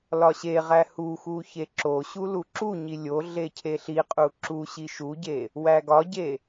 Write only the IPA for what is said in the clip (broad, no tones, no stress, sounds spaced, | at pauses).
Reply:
l ɒ ɕ e ʁ æ h u x u ç e ǁ o ɕ u l u ǁ u ɲ i lʲ o ɮ e cʰ e ɬ i qʼ u ǁ u ɕ i ʃ u ɟ e | w æ ɡ ɒ ɟ e